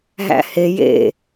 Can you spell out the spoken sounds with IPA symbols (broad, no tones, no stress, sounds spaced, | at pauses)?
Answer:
ɦ æ̰ h e j ḛ